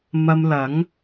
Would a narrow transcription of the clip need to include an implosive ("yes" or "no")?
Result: no